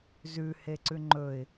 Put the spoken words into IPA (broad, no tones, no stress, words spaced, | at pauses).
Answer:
zʉ heǀʉŋ͡ǃɵɪ̯